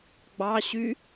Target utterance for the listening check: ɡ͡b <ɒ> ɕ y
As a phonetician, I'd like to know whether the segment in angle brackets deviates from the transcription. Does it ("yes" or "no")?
yes